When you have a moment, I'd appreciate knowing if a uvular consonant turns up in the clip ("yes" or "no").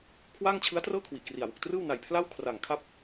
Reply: no